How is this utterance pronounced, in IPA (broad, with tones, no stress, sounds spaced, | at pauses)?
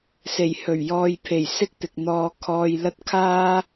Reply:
s e˨˩ j h ɵ˨˩ ɥ j ɔː˨ j pʰ e˨˩ j s ɪ˥ k̚ t̪ ɪ˨ k̚ n̪ ɔː˧ kʰ ɔː˧ j l ɐ˥ t̚ kʰ aː˥